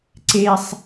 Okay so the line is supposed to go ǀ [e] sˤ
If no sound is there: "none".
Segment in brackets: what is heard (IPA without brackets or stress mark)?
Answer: e